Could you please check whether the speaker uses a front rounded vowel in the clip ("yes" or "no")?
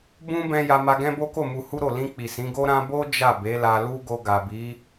no